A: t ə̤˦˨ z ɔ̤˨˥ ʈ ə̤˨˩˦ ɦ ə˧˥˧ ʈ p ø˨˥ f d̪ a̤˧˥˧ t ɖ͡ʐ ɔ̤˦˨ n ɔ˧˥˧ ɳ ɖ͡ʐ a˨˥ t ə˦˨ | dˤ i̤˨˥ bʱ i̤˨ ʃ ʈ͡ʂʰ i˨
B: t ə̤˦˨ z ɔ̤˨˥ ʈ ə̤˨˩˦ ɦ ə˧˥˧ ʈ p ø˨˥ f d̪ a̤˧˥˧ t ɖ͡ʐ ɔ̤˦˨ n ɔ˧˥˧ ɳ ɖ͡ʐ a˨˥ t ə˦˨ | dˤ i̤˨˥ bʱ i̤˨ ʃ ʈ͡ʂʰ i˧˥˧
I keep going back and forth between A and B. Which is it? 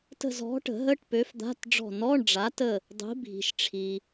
A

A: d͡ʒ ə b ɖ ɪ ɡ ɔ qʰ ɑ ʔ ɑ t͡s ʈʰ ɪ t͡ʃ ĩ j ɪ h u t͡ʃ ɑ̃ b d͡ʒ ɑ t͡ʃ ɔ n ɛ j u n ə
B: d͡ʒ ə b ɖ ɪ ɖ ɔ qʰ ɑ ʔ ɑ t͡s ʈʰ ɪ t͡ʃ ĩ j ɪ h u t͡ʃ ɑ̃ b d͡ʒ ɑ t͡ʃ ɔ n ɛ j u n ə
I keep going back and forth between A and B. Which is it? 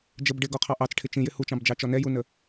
A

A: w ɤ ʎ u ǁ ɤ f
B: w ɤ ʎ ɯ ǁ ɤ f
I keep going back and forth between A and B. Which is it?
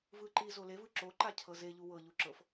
A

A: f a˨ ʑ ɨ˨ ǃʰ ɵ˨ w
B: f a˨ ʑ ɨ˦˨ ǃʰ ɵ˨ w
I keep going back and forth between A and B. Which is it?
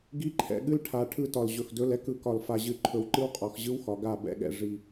A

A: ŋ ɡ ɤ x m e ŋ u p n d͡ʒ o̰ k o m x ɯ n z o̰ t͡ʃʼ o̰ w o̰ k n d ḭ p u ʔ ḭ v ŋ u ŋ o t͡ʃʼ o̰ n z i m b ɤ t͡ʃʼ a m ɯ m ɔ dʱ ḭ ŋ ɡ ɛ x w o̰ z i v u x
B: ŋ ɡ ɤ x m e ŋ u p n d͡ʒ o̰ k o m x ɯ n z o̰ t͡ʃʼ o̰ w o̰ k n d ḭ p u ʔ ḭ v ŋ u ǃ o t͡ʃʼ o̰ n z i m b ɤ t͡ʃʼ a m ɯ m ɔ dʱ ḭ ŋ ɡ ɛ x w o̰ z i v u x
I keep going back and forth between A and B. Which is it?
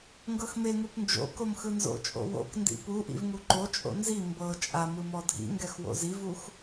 B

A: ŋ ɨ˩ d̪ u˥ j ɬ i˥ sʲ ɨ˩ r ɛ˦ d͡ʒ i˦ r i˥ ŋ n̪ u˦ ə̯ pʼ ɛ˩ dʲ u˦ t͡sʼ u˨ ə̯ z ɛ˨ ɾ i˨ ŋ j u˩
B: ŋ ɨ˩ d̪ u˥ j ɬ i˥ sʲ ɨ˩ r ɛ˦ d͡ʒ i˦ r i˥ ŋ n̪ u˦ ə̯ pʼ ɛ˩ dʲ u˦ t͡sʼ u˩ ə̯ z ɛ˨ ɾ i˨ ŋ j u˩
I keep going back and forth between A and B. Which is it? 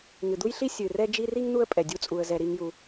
A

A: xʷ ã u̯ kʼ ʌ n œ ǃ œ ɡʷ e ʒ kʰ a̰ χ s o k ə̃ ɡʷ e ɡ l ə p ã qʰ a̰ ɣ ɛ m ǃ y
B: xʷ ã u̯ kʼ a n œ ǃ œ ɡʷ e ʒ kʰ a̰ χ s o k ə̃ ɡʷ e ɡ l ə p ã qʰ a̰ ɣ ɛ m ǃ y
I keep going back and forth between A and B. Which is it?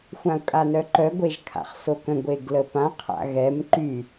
B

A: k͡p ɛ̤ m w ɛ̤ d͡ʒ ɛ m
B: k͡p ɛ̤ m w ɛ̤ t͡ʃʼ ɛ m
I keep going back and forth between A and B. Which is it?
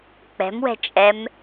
B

